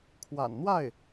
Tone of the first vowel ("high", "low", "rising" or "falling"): low